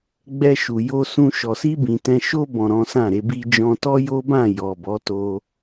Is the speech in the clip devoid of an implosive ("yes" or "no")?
yes